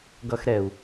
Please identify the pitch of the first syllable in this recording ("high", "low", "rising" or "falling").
high